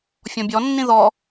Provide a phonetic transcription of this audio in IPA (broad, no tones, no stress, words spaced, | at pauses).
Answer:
fʲɔ̃bʲɔnːĩ ðɔ